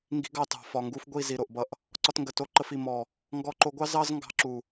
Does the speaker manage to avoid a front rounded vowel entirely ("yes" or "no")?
yes